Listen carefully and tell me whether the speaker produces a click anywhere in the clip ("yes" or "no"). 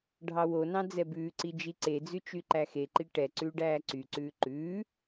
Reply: yes